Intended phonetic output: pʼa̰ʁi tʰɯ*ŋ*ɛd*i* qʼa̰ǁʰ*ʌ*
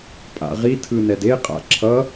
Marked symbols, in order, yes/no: no, no, yes

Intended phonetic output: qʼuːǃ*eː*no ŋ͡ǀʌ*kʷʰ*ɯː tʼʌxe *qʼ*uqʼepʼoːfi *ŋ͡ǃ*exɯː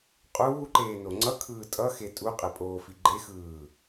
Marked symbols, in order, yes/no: yes, no, no, no

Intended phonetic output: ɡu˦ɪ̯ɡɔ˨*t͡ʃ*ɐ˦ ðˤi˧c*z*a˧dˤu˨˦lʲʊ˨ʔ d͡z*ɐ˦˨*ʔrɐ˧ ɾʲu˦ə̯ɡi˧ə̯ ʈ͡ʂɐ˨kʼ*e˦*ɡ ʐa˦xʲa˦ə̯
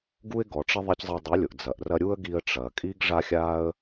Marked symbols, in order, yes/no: no, no, no, no

